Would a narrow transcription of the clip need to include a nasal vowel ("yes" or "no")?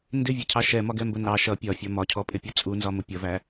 no